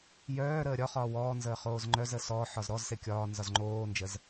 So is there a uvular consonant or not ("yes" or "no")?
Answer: yes